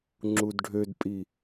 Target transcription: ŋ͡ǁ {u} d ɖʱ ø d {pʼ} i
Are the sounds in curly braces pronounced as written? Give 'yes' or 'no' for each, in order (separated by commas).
yes, yes